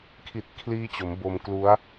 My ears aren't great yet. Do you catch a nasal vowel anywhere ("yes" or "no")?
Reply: no